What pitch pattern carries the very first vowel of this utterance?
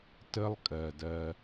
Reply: high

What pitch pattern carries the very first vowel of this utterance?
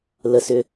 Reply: low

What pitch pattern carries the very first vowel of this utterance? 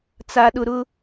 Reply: high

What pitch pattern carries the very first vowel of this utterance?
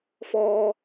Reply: high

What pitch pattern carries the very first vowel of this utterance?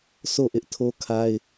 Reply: falling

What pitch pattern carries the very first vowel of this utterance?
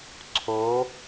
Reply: rising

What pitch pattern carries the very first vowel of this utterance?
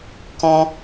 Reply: high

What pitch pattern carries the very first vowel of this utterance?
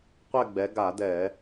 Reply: falling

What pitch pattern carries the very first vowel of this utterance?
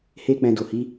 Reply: high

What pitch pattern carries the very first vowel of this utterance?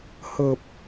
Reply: low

